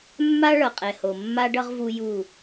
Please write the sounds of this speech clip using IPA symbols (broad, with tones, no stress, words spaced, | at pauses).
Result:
mːa˦ɭʌ˨qʼɛ˨ho˨ mːa˦ɖʌ˦ʁ vu˦ju˦˨